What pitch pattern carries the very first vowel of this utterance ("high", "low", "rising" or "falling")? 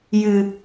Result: high